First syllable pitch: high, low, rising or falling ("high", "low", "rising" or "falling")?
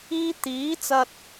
high